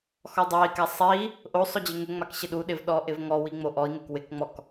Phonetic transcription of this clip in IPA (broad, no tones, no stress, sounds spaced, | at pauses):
x ɔ dˤ a i̯ k a sˤ i | ʔ o sˤ ʊ d͡ʑ ɪ ŋ ʊ ŋ͡m a k ɕ ɪ ɗ u ɗ ɪ v ɗ ɔ ʔ ɪ v ŋ ɔ w i ŋ͡m o ʔ ɔ i̯ ŋ ɪ k w ɪ k ŋ͡m ɔ k